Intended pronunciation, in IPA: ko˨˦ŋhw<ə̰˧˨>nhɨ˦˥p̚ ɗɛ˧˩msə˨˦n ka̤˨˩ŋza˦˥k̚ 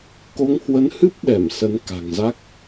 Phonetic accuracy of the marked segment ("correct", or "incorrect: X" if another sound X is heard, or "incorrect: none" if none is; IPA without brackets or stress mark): incorrect: ə˨˦